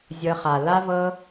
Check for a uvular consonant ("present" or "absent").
present